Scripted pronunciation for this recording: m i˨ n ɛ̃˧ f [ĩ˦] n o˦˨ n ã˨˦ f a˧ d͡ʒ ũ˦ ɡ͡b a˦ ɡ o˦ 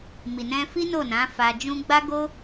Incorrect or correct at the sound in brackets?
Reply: incorrect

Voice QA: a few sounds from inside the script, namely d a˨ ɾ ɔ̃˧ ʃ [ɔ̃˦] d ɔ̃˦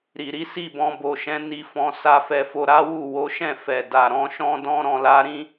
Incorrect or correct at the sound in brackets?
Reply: correct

